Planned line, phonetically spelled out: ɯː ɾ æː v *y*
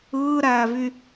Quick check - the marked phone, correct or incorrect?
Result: correct